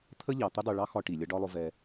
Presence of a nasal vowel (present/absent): absent